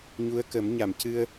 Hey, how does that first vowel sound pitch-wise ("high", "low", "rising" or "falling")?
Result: rising